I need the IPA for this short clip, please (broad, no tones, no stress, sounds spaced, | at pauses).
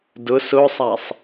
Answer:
d ʊ s ʊ sˤ a sˤ